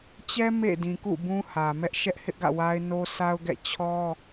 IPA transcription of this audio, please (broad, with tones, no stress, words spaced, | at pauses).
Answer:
t͡ɕɛ˦ mḛ˦˨ dĩ˨ kṵ˦˨bũ˦hä˨ mɛ˦ʔ ʃɛ˦ʔhɪ˦ʔɡä̰˦˨wa˦ɪ̯ no˦sa˦ʊ̯ ɡɛ̰˦˨ t͡ɕʰɔ˦